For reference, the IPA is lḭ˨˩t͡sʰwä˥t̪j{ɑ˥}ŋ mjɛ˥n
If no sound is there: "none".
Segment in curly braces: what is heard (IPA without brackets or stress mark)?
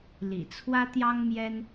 ɑ˥